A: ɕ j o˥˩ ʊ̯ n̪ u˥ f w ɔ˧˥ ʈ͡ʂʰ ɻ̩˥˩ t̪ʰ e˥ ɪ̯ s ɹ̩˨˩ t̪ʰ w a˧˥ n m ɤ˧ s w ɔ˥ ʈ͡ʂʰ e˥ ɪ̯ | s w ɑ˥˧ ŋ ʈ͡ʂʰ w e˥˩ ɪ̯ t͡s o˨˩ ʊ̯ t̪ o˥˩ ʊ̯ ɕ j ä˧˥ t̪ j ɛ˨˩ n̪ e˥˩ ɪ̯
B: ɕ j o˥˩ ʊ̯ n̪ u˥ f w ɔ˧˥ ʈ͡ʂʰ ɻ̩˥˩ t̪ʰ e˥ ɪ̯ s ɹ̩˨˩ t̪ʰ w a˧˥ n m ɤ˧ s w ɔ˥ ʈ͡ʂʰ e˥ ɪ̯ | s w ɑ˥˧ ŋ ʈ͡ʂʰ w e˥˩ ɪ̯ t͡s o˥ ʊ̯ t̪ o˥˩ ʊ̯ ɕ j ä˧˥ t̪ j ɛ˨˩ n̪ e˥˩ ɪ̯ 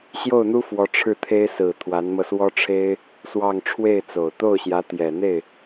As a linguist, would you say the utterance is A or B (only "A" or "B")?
A